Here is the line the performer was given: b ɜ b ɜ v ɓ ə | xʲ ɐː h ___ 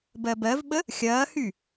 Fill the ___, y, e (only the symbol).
y